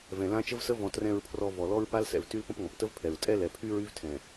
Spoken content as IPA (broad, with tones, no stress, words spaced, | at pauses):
vɛ̃˨lã˦t͡ʃə˦vsə˦ vɔ̃˨ trɛ̃˨ɹpʰrɔ˨ vɔ˨lɔ˦ɹ pa˦lsɛ̰˨v ty˦lpə̃˦pŋɔ̃˨p tə˦vpʰɛ˨ɹ tʼɛ˦lɛ˨pʰy˦ ɹy˦vtʰɛ̃˨